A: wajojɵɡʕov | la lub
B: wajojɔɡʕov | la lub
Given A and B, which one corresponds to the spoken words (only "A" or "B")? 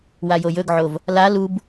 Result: A